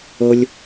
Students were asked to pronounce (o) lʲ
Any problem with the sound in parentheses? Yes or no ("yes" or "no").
yes